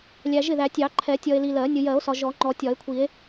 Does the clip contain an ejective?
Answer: no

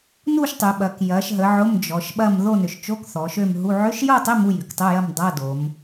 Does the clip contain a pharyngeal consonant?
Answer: yes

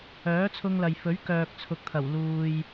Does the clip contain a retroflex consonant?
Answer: no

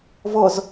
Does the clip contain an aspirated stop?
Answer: no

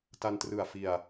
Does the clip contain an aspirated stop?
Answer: no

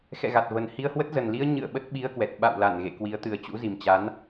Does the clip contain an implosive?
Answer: yes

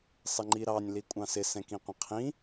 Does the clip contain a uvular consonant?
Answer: yes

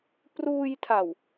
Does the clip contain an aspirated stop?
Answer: yes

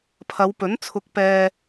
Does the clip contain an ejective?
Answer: no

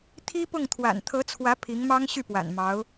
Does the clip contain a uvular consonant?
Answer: no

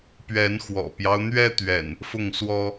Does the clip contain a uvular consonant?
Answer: no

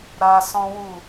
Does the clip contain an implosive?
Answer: no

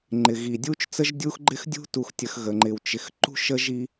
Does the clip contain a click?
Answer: yes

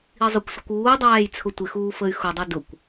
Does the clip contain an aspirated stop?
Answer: yes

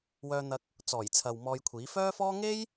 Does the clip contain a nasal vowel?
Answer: no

